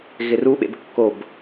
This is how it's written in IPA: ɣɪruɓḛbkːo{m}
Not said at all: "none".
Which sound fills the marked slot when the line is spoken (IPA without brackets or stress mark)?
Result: b